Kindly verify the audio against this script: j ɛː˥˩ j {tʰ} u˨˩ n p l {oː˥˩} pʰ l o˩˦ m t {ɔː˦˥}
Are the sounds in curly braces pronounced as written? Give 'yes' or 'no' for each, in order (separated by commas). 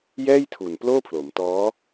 yes, yes, yes